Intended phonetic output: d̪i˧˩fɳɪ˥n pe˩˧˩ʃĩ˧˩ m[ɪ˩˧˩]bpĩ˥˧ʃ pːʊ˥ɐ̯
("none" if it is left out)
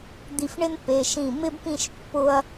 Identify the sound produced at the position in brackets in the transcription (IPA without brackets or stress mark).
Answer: ɪ˥